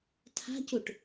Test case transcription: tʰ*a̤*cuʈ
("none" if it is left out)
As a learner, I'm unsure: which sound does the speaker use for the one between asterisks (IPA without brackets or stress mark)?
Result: a̤